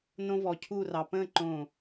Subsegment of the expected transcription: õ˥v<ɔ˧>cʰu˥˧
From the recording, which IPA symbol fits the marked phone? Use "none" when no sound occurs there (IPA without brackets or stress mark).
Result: ɔ˧